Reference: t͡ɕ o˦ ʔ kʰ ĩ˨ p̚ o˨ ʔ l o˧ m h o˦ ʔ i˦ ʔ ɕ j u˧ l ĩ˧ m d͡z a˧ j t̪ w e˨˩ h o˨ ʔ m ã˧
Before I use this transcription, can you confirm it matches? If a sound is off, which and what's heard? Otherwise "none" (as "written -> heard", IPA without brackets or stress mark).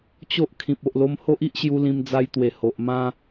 none